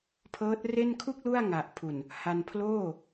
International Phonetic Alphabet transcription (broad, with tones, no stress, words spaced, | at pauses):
pʰɤː˦˥t̚re˥˩n kʰu˥˩k̚ lu˥˩a̯ ŋa˨˩ʔpʰu˨˩n | ha˧npʰloː˥˩